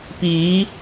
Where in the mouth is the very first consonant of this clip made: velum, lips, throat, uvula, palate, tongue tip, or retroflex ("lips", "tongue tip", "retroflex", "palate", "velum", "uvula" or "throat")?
lips